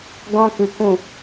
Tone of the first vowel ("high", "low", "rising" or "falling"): high